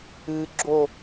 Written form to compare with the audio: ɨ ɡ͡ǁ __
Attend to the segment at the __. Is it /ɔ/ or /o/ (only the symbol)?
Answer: o